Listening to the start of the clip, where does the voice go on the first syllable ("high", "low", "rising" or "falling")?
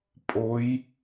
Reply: rising